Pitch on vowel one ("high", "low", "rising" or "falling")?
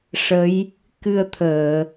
rising